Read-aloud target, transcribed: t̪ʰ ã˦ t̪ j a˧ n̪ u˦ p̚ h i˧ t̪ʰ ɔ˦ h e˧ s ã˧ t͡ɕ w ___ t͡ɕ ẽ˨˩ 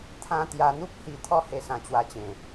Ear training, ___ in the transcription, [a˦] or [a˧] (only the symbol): a˧